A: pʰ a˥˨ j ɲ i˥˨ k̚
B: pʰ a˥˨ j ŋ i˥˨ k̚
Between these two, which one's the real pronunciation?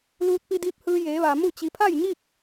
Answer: A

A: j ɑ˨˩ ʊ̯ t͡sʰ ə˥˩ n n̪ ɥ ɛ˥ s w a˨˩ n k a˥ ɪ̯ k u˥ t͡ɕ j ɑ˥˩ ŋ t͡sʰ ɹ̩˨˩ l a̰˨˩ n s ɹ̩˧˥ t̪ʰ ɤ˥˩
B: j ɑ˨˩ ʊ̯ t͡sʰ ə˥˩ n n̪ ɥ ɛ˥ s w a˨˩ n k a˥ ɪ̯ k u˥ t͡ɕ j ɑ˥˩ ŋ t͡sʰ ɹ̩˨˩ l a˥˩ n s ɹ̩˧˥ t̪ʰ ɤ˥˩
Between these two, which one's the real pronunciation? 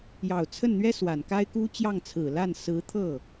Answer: B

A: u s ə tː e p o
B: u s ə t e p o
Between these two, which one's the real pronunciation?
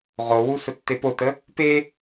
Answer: A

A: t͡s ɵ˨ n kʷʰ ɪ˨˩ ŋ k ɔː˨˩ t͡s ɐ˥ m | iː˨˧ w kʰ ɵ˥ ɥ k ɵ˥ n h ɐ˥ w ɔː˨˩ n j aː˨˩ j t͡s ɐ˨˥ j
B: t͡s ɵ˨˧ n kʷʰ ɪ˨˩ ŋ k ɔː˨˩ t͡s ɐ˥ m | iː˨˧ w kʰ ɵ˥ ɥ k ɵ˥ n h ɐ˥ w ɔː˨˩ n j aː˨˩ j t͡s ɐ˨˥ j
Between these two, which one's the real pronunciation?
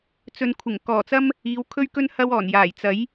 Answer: A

